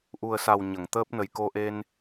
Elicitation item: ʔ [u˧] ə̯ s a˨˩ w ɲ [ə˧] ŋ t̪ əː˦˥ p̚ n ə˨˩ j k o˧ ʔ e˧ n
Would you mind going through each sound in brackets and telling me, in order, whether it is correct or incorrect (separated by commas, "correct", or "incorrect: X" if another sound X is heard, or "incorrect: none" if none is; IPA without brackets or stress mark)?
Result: incorrect: u˨˩, incorrect: ə˨˩˨